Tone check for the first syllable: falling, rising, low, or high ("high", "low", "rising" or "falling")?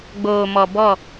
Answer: low